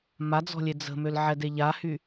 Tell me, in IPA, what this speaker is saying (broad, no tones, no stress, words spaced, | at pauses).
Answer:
mad͡zɔ̤lʲe d͡zə̤mølʕɛde ʎahy